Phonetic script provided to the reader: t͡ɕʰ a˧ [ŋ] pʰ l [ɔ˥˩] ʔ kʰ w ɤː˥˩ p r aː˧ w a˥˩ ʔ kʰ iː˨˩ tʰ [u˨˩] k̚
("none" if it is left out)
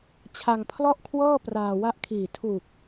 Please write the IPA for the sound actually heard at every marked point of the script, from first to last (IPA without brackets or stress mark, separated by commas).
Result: ŋ, ɔ˥˩, u˨˩